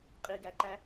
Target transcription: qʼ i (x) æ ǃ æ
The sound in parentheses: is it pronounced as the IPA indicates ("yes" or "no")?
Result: no